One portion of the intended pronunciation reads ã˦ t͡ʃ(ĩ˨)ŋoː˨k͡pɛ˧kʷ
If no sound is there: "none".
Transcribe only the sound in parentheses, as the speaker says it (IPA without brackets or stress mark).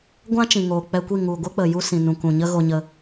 ĩ˨